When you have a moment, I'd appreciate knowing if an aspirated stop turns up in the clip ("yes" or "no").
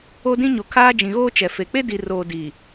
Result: yes